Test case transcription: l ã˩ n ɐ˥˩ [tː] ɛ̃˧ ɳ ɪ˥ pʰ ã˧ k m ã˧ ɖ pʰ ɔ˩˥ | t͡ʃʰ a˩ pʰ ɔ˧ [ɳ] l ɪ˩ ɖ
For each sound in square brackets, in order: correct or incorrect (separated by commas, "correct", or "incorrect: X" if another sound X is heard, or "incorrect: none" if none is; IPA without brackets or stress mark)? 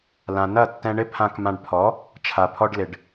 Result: correct, incorrect: ɖ